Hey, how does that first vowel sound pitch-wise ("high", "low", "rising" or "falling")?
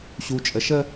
low